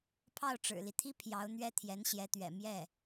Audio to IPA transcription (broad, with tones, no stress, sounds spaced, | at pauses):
pʰ ɑ˥˩ ʊ̯ ʈ͡ʂ ɻ̩˨˩ l i˦ t̪ʰ i˥ pʰ j ɑ˧˥ ʊ̯ n̪ ɥ ɛ˥ t̪ʰ j ɛ˧˥ n ɕ j ɛ˧˥ t̪ ɥ ɛ̰˨˩ m j ɛ˥˩